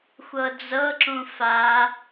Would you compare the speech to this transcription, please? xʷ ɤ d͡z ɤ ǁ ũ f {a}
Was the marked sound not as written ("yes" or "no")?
no